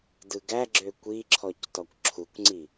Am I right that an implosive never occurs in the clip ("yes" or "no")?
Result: yes